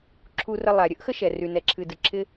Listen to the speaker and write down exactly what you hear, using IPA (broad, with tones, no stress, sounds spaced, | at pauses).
ǁʰ u˧ r ə˧ lˠ a˩ ɾʲ ə˥ ʔ x ə˥ ʃ ɛ˩ r y˩ n ɛ˩ ǁʰ ɨ˩ d ɨ˩ ǁ ɪ˧